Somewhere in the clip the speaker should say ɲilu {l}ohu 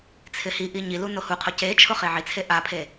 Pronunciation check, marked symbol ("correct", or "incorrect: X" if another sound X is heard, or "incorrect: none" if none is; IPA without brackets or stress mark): incorrect: n